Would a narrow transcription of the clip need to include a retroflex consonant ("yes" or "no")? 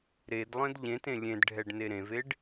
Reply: yes